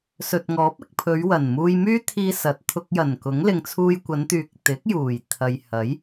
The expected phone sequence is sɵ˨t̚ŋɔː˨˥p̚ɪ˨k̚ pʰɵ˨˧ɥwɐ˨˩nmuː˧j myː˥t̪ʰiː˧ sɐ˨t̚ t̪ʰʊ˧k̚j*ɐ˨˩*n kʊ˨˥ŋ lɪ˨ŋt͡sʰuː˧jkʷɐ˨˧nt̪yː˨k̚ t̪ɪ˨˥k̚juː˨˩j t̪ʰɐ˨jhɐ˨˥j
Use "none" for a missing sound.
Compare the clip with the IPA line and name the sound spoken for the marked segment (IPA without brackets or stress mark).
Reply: ɐ˨˩